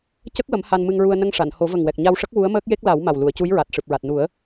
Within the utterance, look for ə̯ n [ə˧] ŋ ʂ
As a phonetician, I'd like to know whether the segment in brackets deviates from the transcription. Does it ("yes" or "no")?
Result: no